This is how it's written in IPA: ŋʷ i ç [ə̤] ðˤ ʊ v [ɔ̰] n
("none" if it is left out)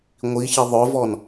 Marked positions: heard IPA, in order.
ə, ɔ

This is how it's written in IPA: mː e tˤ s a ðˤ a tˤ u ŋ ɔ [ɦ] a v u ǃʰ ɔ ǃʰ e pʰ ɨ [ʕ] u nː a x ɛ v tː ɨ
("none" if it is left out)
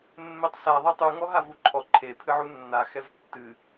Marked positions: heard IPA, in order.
ɦ, ʕ

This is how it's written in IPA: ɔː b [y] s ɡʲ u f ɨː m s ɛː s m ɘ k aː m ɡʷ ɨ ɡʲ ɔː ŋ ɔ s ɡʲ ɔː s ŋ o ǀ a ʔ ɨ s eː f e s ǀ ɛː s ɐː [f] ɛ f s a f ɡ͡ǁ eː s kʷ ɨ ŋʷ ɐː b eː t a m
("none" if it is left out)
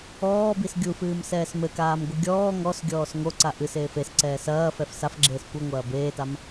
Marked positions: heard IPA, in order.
i, f

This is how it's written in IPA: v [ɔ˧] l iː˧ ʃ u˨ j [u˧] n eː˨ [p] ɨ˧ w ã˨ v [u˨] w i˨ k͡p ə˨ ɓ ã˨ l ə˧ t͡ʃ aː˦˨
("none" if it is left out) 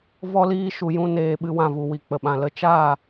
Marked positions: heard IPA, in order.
ɔ˧, ũ˧, ɓ, u˨

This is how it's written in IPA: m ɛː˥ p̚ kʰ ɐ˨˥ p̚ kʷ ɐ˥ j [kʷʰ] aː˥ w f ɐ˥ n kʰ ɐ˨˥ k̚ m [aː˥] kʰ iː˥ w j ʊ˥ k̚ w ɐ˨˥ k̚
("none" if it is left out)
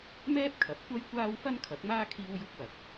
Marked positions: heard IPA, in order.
kʷ, aː˥

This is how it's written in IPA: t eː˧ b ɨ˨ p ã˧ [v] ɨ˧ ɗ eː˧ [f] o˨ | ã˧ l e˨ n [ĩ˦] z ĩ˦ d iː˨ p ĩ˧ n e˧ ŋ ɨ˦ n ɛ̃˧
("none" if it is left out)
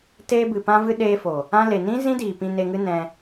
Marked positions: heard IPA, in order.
v, f, ĩ˦

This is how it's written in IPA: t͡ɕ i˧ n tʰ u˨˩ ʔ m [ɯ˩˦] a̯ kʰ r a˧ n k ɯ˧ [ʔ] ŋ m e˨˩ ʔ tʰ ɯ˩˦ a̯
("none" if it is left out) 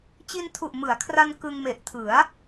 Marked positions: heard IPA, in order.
ɯ˩˦, none

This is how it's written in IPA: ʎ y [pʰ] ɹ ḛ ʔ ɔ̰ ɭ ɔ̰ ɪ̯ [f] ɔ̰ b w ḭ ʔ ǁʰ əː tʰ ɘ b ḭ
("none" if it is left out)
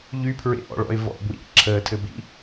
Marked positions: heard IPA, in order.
pʰ, v

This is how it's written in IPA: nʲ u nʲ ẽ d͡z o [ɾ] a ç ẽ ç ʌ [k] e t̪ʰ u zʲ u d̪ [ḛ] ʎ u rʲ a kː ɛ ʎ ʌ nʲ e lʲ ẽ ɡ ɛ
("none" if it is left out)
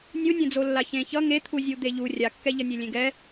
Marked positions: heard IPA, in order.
lː, ŋ, e

